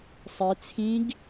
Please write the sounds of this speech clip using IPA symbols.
sˤ i t͡sʰ ĩ ɡ

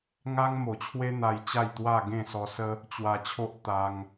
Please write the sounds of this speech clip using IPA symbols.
ŋ a˦ ŋ m o˨˩ t͡ɕʰ w e˦ n̪ a˧ j t͡ɕ a˥˧ j t̪ w a˥˧ ɡ ẽ˥˧ s ɔ˧ s ə˦ | t͡ɕ w a˧ t͡ɕʰ o˦ ʔ t̪ a˧ ŋ

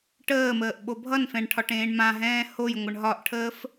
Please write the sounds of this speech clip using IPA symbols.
ʈ əː m əː ʔ ɓ o bʱ ʌ n f ɛ̃ ɳ ʈʰ ɒ ʈ ẽː ɳ m ã ɦ ɛ̃ː h o j ŋʷ ə ɳ ɦ ɒ ʔ ʈʰ əː f

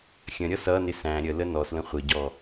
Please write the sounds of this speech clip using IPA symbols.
xʲ ə̃ ɾʲ ʌ s ʌ n ɪ s æ̃ ɾʲ ə l ə n ɔ s l ə̃ χʷ ɪ ɟ ɔ

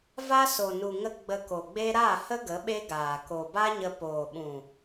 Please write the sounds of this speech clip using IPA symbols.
v a˦ s o˨ n u˨ ŋ ə˦ ɡ͡b ə˧ k o˨ ɡ͡b e˦ ɾ a˦˨ h ə˦ ɡ ə˨˦ ɓ e˦ ɡ aː˨ k o˨ b a˦ ɲ ə˧ p oː˨ ɓ ũ˨

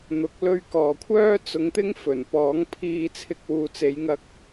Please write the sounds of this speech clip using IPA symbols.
n̪ ʊ˨˥ k̚ l ɵ˧ ɥ k ɔː˨ kʷʰ œː˥ t͡s ʊ˧ ŋ t̪ ɪ˥ ŋ f ɵ˨˩ n p ɔː˨˥ ŋ pʰ iː˧ t͡sʰ ɪ˧ k̚ w uː˨ t͡s e˨˧ j ŋ ɐ˧ k̚

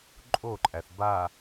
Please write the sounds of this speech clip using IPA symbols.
ǃʼ o ǃʼ æ θ b a

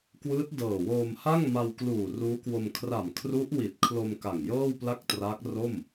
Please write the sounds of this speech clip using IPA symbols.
k w ɯː˦˥ t̚ d ɤː˨˩ w oː˧ m h a˥˩ ŋ m a˧ w k l uː˨˩ r uː˦˥ k w o˧ m kʰ r a˨˩ m kʰ r u˦˥ ʔ w i˨˩ t̚ kʰ l o˧ m k a˨˩ ŋ j ɤː˥˩ w p l a˥˩ k̚ t r a˦˥ k̚ r o˥˩ m

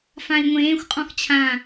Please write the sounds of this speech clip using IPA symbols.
f ã i̯ ŋʷ ẽː xʷ qʼ ɔ̃ x t͡ɕʰ ã

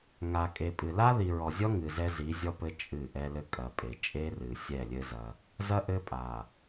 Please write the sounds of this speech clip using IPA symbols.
ŋ a˨ kʼ e˨ pʼ ɨ˨ l a˦ ð i˨ ɹ ɔ˨ zʲ ɔ˦ ŋ ɨ˨ z ɛ˦ z i˨˦ zʲ ɔ˦ p ɘ˦ t͡ʃʼ ɨ˦˨ ʔ ɛ˦ l ɘ˦ kʼ ɐ˨ pʼ e˨ t͡ʃʼ e˦ r ɨ˨ sʲ ɛ˦˨ lʲ ɘ˦ z ɐ˦ | z ɐ˦ ʔ ɘ˦ pʼ a˨

